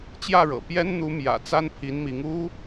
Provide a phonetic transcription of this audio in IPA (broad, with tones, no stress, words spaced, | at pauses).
t͡ɕjä˥˩ɻɤ̰˨˩ pjɛ˥nn̪u˧˥mjä̰˨˩ t͡sa˥npʰi˧˥nmi˧˥ŋ u˥